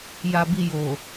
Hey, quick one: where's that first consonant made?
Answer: palate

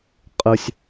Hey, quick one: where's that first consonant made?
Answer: uvula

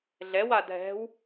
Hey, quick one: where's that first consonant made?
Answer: tongue tip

